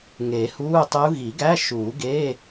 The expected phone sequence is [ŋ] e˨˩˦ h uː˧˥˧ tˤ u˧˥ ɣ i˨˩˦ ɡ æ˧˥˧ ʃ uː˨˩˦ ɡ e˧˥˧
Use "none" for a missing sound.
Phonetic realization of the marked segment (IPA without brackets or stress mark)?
ŋ